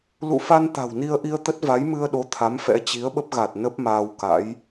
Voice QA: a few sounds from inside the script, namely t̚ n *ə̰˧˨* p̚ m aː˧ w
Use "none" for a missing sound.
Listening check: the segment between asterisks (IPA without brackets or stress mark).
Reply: ə˦˥